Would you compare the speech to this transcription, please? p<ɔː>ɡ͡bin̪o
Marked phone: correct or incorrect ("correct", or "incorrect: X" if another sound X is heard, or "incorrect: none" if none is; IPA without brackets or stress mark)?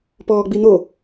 correct